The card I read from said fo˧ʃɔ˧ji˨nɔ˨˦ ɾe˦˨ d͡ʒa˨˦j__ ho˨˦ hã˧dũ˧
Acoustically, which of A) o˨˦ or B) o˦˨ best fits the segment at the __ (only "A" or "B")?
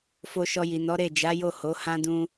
B